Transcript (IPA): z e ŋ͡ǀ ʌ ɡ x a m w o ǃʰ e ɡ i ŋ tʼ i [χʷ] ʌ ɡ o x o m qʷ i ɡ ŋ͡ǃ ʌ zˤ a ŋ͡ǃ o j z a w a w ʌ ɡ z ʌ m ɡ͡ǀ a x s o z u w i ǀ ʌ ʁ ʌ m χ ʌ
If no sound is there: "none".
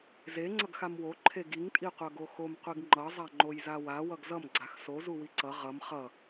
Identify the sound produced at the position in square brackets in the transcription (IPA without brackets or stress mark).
qʷ